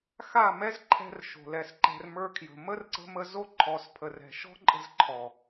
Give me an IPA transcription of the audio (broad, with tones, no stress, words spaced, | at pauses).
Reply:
xa˦˨mɛ˦zǃʰɛ̤˧r ʃo̤˨lɛ˨sǃɛ̤˧r mə˞˧kʰjə̤˨ mə˦rǀə̤˧mə˧zo˦ ǃʰɔ˧spʰə˧rɛ̤˧ ʃɔ̤˦ǃʼə̤˧zǃʰɔ˨